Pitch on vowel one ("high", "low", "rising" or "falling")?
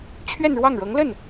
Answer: falling